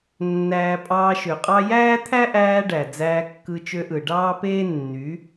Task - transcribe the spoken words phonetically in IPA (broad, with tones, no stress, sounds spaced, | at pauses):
nː æː˧ pʼ ɑː˧ ʃ ø˨ qʼ ɑ˦ j æː˦ t̪ʰ æ˦ ʔ æː˧ ɖ æ˨ d͡z æː˧ kː ɯ˧ t͡ʃ ø˧ ʔ ɯ˨ ɖ ɑː˦ p eː˦ nː y˨˦